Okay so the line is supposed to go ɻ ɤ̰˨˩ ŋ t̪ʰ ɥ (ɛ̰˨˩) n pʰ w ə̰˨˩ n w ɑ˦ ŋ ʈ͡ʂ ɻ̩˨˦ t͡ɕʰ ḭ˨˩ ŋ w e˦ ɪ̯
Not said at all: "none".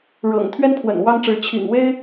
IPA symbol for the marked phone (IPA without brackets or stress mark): ɛ˦